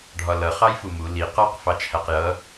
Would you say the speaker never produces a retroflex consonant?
no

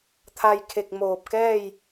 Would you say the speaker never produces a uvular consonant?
yes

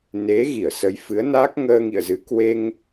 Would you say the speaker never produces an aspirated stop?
yes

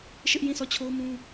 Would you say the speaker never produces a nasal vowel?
no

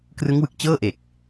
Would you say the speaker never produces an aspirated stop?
yes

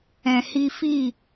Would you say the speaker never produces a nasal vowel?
no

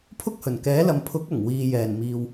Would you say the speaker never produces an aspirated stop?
no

